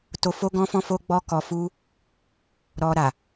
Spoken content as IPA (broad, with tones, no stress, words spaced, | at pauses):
to˧fo˦ɡɔ̃˦fɔ̃˦ fo˦ɡ͡bɔ˦kɔ˧fu˦ | ɾɔ˧ ɾa˨